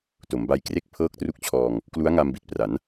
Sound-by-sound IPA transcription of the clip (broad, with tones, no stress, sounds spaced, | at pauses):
t o˩˦ m b a˧ j k r e˥˩ k̚ pʰ ɤː˦˥ k̚ t r u˦˥ k̚ t͡ɕʰ ɔː˧ ŋ | k l u˦˥ a̯ ŋ a˧ m b i˨˩ t̚ p r a˩˦ n